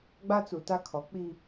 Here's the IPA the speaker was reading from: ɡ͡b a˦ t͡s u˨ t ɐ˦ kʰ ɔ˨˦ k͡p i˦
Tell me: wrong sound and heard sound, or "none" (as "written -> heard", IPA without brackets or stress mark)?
ɐ˦ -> a˦